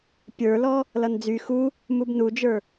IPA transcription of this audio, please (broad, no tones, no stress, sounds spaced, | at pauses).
pʲ ə˞ l ɔ | l ʌ n d͡z y x u | m u b n u d͡ʒ ə˞